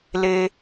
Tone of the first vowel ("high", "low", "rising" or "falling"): low